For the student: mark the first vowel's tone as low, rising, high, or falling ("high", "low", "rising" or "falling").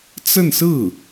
falling